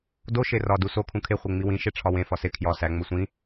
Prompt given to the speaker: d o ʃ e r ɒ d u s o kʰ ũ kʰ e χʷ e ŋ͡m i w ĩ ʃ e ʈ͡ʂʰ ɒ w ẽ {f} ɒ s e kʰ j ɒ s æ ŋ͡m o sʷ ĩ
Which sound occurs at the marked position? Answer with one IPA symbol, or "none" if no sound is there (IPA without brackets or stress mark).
f